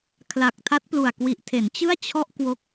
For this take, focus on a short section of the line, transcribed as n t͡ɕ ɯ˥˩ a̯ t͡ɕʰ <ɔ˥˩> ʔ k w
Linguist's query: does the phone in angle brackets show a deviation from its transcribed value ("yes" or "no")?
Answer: no